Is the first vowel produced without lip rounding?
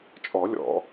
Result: no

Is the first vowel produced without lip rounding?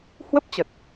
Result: yes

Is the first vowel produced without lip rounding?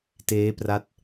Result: yes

